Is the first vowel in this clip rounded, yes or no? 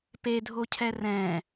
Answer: no